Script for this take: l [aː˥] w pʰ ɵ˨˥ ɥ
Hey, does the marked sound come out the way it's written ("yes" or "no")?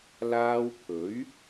yes